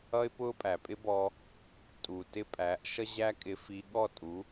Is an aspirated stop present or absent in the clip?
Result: absent